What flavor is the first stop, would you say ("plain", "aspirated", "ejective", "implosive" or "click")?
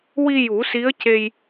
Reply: plain